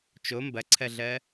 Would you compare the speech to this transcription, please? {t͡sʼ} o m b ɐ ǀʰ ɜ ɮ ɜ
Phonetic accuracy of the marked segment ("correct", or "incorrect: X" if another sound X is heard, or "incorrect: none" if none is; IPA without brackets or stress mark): incorrect: t͡ʃ